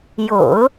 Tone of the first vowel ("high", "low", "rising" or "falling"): low